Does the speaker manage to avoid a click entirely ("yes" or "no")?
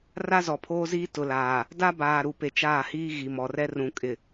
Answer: yes